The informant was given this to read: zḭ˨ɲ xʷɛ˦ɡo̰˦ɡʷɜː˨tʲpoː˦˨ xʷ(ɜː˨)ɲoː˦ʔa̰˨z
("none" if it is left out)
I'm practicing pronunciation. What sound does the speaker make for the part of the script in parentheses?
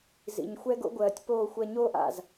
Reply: ɜ˨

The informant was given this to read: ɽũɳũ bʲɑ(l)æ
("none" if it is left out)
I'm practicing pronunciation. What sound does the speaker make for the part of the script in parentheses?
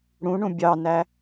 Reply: n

